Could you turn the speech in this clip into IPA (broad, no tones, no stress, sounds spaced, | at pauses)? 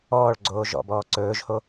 ɔː ɭ ɡ͡ǀ oː ʒ ɔ̰ b ɔː ǀ ɵː ʒ h o